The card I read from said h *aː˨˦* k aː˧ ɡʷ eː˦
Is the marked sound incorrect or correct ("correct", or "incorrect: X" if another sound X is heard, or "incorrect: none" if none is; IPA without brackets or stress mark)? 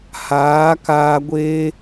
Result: correct